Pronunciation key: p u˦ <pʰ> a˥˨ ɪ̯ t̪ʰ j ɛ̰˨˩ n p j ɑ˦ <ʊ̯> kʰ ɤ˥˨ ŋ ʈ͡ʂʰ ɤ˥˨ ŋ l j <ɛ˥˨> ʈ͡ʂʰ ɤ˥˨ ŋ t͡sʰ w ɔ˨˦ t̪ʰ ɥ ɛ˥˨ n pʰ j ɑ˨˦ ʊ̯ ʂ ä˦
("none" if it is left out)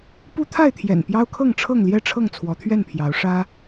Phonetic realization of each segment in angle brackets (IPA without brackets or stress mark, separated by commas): t̪ʰ, ʊ̯, ɛ˥˨